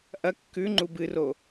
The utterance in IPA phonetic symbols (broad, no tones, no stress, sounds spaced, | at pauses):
ʔ ɐ kː ʉ ŋ͡ǃ u b ɨ r o